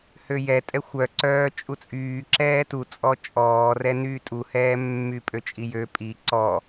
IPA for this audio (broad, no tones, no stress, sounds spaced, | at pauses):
h ø j ɛ tʼ ɛ xʷ œ ǀ œː t͡ʃʼ u t͡sʼ yː ǁ ɛː t u t͡sʼ ɔ t͡ʃʼ ɔː r ɛ n yː tʼ u h ɛː mː y pʼ ø t͡ʃʼ i j ø pʼ i ǀ ɔ